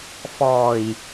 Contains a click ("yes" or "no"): no